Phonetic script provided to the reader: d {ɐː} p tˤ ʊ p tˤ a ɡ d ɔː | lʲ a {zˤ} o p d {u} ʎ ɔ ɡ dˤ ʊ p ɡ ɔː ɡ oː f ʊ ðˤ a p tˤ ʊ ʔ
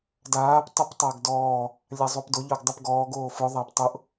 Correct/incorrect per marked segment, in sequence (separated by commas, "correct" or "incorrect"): incorrect, correct, incorrect